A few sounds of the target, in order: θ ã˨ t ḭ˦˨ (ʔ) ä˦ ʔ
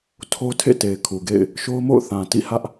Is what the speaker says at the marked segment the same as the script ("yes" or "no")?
no